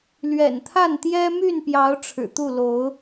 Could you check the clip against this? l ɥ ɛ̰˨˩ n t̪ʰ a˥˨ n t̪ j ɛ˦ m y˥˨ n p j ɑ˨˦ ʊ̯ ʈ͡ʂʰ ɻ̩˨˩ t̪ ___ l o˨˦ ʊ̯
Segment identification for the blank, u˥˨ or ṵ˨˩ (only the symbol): u˥˨